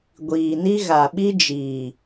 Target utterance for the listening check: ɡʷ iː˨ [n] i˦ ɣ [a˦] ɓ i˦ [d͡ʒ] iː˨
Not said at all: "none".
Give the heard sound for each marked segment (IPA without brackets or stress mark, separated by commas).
n, a˨, d͡ʒ